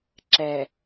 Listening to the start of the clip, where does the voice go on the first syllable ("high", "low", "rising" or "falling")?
low